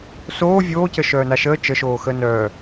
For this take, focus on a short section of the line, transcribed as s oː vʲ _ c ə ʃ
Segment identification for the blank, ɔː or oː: oː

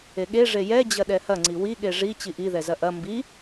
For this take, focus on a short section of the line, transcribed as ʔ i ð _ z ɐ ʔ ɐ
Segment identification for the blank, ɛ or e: ɛ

